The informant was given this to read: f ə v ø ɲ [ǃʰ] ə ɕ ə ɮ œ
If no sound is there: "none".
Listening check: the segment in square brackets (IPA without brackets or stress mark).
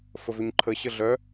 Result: ǃʰ